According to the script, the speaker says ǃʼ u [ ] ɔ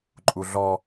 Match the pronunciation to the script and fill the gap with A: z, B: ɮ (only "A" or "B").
B